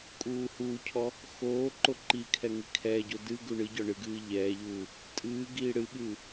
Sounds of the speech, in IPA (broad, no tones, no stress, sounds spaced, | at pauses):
kʼ uː h uː cʰ ɔ | x oː ǃ o ǃ i kʰ ɛ ŋ i kʰ ɛː ɟ o d ɨ ɡ u ɳ ɨ ɟ ɔ ɳ ɨ ɡ ɨː ʎ ɛː ʎ uː | tʼ ɨː ɡ iː ɽ ɨ ɠ ɨː